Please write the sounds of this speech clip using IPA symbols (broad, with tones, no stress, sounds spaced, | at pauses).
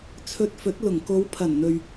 t͡sʰ ɵ˧ t̚ f ɵ˨˥ t̚ l ʊ˨˩ ŋ k o˨˧ w pʰ ɐ˨˩ n n̪ ɵ˨ ɥ